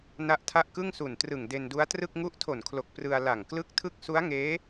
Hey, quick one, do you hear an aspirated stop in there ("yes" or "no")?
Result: yes